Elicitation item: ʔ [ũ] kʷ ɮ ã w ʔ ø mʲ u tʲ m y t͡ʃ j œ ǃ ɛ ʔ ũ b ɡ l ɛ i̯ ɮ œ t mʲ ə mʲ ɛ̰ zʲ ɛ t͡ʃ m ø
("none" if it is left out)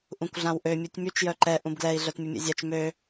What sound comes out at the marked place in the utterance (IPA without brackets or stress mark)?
ũ